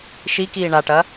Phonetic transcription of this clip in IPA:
ʃ i k iː ɳ a ʈ ɐ

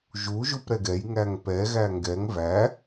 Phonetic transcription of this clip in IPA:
ʒ u ʒ u p ɾ ɛ ɡ ɛ j ŋ æ ŋ p ɛ ɣ æ ŋ ɡ ɛ ŋ v æ

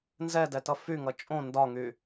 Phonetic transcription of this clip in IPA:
n z ɛ d ɛ t ʌ f y ŋ ʌ t͡ʃʼ õ n d ɒ ŋ y

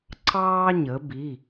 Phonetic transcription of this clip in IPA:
ǀ ɑː˦ ɲ ə˩˧ b i˩˧˩

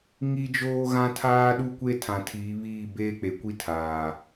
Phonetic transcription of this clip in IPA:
ŋ i˦ d͡ʒ oː˦ ɣ ã˦ tʰ aː˦ ɗ u˦ kʷ e˦ tʰ ã˨ tʰ iː˨˦ β iː˦˨ b eː˦ k͡p e˨ kʷ i˦ tʰ aː˨

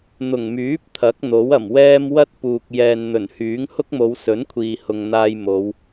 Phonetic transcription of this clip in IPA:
n̪ ʊ˨˩ ŋ m yː˨˥ p̚ t̪ʰ ɐ˨˥ k̚ n̪ o˨˥ w ɐ˨˩ m w ɛː˥ m w ɐ˥ t̚ p uː˨ k̚ j ɛː˨ n n̪ ɵ˨˩ n h yː˨˥ ŋ h ʊ˥ k̚ m o˨˧ w s ɵ˨˥ n kʷʰ iː˨ h ʊ˨ ŋ n̪ aː˧ j m o˨˧ w

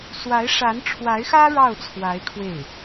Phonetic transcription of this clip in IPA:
s w a˧˥ ɪ̯ ʂ a˧˥ n ʈ͡ʂʰ w a˧˥ ɪ̯ x ä˥ ɻ ɑ˥˩ ʊ̯ t͡sʰ w a˧˥ ɪ̯ kʰ w e˥˩ ɪ̯

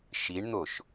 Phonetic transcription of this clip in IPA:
ʃ i ɳ n̪ o ʃ

